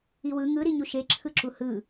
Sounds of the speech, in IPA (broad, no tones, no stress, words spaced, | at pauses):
iwɯ ŋɯ ɾiɲuʃe ǁʰɯǁuhɯ